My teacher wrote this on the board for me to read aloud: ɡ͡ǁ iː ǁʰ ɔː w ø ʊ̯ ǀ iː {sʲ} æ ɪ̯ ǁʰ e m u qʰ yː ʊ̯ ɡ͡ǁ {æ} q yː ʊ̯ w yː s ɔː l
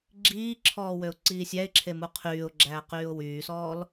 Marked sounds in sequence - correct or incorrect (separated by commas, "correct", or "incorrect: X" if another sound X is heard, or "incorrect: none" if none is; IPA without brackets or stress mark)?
correct, incorrect: æː